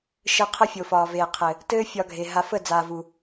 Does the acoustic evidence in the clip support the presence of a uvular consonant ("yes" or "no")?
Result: yes